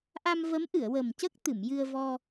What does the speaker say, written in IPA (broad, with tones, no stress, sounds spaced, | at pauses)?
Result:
ʔ a˧ m v ə˧˥ m ʔ ɨ˨˩˨ ə̯ w əː˨˩ m c ə˦˥ k̚ t̪ ɨ˨˩˨ m j ɨ˧ ə̯ v ɔ˧